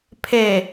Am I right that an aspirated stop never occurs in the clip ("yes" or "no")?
no